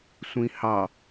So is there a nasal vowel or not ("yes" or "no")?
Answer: yes